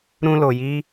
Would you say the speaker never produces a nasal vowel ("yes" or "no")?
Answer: no